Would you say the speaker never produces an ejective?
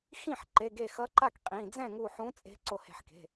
no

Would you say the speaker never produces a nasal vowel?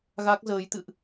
yes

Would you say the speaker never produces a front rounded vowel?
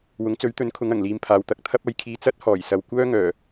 no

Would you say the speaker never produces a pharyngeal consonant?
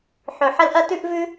no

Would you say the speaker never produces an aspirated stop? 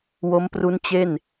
yes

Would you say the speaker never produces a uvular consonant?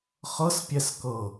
no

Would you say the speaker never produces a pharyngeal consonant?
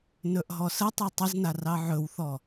no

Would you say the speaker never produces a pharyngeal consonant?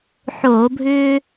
no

